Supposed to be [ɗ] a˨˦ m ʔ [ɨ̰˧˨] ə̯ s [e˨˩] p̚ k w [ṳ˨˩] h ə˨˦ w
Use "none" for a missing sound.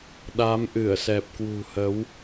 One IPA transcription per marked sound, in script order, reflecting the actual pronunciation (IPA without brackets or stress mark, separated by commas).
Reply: ɗ, ɨ˧˩, ɛ˨˩, ṳ˨˩